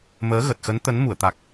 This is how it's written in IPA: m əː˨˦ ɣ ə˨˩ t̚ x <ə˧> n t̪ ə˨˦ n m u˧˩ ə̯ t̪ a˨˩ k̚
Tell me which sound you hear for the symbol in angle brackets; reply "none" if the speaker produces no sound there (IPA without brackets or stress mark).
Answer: ə˨˦